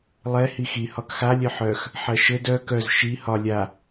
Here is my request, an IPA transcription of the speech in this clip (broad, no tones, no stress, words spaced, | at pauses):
lˠɛ hixi hɒkxa lʲœħœx | ħɜʃɘd œ kœz ʃi hɒ lʲa